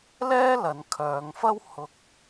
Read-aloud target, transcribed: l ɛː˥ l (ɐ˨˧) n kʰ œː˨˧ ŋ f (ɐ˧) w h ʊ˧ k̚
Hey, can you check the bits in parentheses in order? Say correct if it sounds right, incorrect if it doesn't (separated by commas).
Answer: correct, incorrect